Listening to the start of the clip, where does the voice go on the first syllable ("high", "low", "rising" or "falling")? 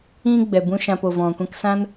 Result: high